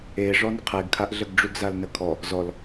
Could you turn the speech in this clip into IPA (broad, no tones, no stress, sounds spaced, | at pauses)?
e ʐ ɔ n qʰ e ɡ kʰ a ʔ ɮ ə ɡ ɖ͡ʐ y ɡ z a l n ə kʰ ɔ | z ɔ l